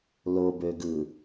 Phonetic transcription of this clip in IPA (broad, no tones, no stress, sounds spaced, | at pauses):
l o b ø ɡ ɯ